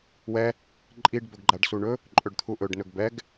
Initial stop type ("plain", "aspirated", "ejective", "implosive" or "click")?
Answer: click